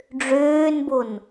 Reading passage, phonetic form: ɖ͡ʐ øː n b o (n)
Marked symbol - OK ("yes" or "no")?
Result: yes